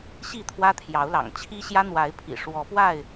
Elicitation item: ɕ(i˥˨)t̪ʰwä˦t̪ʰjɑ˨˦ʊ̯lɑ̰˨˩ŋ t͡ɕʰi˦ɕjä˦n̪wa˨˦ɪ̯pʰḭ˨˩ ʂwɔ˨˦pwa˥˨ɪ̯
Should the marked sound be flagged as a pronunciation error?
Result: no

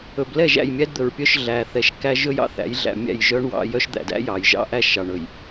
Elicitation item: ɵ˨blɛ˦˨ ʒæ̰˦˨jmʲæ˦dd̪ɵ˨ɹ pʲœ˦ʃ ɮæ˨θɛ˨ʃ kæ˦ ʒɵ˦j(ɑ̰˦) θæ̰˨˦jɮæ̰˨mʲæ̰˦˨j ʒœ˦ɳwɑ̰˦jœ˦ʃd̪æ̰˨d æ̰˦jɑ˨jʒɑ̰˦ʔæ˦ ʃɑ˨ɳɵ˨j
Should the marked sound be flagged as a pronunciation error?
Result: no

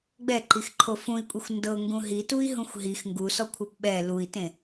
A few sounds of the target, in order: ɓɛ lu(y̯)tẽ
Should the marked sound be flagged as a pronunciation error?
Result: yes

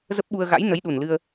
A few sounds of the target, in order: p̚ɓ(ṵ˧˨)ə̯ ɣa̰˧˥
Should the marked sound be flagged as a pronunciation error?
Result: yes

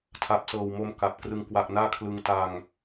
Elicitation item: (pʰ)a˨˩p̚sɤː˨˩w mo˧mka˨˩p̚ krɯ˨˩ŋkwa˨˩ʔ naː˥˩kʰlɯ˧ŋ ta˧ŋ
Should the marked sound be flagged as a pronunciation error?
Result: yes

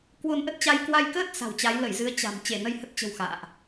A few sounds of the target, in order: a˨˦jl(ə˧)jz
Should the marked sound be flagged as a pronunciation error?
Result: yes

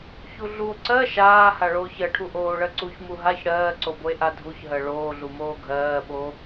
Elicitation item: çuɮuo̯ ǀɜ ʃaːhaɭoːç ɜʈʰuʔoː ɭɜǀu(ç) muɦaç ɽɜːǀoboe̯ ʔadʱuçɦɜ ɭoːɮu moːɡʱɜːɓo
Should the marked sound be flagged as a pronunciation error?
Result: no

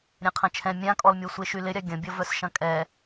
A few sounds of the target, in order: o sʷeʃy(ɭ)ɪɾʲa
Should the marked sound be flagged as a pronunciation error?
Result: yes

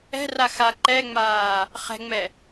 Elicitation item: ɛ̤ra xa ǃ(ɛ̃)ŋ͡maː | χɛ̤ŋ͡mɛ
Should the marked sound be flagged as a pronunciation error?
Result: yes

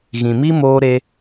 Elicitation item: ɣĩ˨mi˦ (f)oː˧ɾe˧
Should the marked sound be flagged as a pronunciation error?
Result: yes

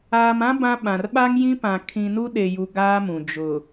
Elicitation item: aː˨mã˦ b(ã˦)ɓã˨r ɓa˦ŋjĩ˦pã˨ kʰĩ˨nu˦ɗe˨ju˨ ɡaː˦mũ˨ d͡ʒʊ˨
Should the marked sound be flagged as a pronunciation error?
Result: no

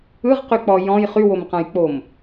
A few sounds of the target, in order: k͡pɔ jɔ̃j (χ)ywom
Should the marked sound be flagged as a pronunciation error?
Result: no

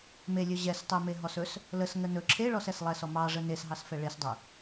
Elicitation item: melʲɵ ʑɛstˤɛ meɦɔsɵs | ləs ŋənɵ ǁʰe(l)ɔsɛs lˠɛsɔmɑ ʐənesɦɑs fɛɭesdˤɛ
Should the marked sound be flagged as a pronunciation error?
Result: yes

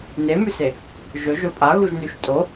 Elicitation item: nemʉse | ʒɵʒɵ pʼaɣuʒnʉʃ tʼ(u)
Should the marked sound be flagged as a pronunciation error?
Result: yes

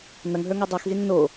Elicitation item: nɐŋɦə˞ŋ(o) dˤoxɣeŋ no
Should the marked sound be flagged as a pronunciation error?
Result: yes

